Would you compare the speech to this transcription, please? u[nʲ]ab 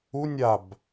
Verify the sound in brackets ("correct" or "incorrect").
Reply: correct